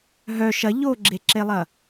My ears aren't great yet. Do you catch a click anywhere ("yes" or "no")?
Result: yes